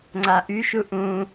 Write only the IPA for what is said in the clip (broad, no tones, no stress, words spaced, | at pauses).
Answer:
ŋ͡ǀaʔyʃu ʔũ